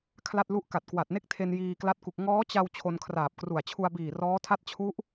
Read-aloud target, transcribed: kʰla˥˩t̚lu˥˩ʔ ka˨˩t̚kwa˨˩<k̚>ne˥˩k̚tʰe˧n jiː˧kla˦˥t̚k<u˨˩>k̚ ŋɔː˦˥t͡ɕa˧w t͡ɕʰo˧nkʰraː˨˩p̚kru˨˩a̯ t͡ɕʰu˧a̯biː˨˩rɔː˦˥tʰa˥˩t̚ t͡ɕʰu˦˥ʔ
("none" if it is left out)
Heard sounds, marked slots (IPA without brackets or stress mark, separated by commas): t̚, u˨˩